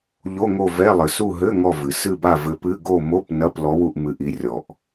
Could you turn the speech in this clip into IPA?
ʎ o˧˥˧ ŋ o˦˨ v ɛ˧˥˧ lˠ ɘ˩ s u˦˨ ɦ ɘ˧˥˧ ŋ ɔ˦˨ v ɨ˩ s ɨ˦˨ b a˦˨ v ɘ˨˦ p ɨ˧˥˧ ɡ o˦˨ m o˧˥˧ p n ɐ˧˥˧ p l ɔ˨˦ w u˦˨ ʔ m ɨ˨˦ ʔ i˨˦ rʲ ɔ˩ ʔ

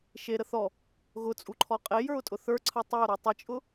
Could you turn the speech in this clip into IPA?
ʃ e ɾ ə θ ɔ | ɣ ʊ t͡sʼ u ǃʰ ɔ qʼ e j ə˞ ʊ̯ tʼ ʊ θ ə˞ ǀʰ ə tˤ i ʊ̯ ɾ ɔ tˤ i t͡ʃʼ ʊ

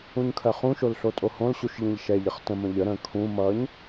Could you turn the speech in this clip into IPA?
ũ ɲ kʰ ɜ χ ũ ʃ o l ɬ o tʼ o h õ l ɕ u ʃ ʎ ĩ ʎ ʃ ɛ ʎ ə χ t ə̃ m ə̃ ʎ ə ɾ ə̃ kʰ ũ m ʌ ɲ

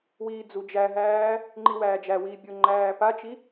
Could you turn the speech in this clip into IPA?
w iː d͡z u d͡ʒ æ ɦ æː | ŋ͡ǃ i w æː d͡ʒ æ w iː bʲ ʊ ŋ͡ǃ æː p a t͡ʃ i

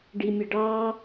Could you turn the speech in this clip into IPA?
ɖ i mʲ ə ɖ ɑ

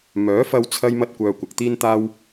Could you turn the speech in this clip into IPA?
m œː˨˥ f ɐ˧ w t͡sʰ ɐ˥ j m ɐ˥ t̚ kʷ œː˧ kʷ ɐ˨ k̚ t̪ iː˥ n t̪ aː˥ w

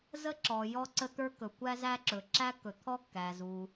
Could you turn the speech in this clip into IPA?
z ə˦ ǁ ɔ˨ j ɔ˦ ǀ ə˦ t̪ ə˞˦ k ɵ˨ kʷ æ˦ z æ˦ ǁ ɵ˨ ǁ æ˦ kː ɵ˨ t̪ʰ ɔ˦ kː æ˨ z u˨

